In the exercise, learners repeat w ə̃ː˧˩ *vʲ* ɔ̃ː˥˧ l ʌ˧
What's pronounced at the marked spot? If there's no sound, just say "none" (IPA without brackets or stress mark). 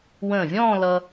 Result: vʲ